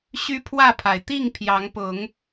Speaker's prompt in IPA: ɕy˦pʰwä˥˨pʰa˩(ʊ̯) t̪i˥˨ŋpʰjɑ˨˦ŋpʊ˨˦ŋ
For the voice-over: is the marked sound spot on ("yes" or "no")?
no